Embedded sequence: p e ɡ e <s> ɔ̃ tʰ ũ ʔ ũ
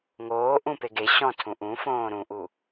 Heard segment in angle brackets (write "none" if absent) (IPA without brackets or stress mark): ɕ